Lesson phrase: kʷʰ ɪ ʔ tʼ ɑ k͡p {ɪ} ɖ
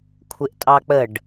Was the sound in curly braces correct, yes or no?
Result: no